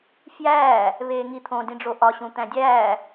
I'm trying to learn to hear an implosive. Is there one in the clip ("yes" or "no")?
no